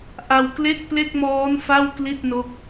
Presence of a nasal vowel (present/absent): absent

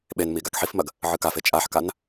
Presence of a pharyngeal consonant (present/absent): present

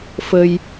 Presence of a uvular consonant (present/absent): absent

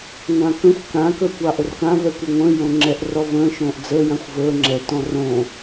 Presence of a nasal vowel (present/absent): present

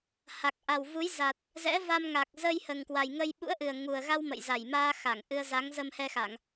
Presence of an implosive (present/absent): present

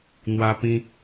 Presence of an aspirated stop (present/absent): absent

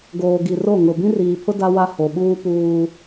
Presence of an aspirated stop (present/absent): present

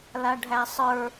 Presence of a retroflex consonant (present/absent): present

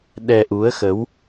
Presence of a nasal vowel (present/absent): absent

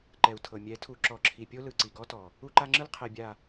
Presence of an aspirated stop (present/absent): present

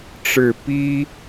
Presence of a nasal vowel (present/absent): absent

